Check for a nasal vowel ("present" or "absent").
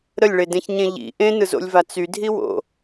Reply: present